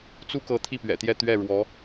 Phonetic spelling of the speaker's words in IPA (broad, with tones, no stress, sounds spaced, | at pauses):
t͡s u˥ k ɤ˧˥ t̪ʰ i˥˩ p ɥ ɛ̰˨˩ t̪ j ɛ˥˧ t̪ ɥ ɛ˥˩ ɻ w ɔ˧˥